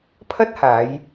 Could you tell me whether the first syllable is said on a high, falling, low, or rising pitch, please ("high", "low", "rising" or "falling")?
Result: high